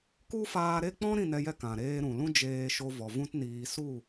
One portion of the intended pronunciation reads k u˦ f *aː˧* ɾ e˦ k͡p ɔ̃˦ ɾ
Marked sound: correct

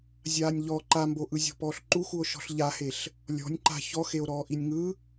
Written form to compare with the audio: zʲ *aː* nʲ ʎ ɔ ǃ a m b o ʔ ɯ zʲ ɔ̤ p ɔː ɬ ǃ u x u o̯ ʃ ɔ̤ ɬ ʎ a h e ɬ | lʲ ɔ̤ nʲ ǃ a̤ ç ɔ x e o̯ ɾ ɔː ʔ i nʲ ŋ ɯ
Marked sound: correct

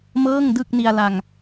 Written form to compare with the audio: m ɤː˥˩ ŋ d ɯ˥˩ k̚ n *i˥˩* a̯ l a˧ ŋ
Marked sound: incorrect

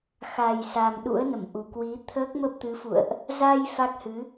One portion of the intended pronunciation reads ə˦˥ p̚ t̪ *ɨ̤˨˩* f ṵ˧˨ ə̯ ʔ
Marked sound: incorrect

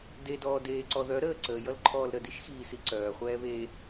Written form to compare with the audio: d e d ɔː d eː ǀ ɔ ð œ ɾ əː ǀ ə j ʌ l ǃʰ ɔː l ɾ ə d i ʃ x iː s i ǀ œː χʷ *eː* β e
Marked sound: incorrect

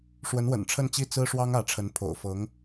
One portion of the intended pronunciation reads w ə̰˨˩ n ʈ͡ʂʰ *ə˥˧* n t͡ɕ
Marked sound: correct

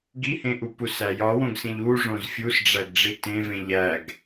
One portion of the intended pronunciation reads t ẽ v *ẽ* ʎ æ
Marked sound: correct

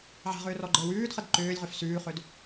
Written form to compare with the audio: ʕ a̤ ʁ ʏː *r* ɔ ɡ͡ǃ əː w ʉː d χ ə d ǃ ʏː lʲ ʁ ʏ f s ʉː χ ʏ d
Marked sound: correct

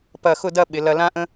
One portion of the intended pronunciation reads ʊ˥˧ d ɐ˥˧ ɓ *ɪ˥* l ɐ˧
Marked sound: incorrect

